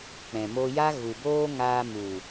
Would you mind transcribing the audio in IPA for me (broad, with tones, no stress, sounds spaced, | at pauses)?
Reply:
k͡p ɛ̃˨ m o˧ j a˦ ɣ u˨ b oː˦ ŋ aː˧ m u˨